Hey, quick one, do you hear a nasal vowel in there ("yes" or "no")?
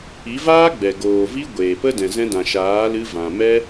yes